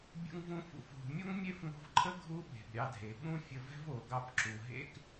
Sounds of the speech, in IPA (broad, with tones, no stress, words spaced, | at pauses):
bʲṵ˧ŋvũ˧fṵ˩fɦṳ˩ mʲo˥ŋmʲe˥fŋo̤˧vǃʰə˥ ɡʱu˥ɓe̤˩bɾʲɑ˧dʱe˩ ɓũ˥fʲə˧vɛ̤˥v o˩ɡɑ˧pǁu˩ ɦḛ˧k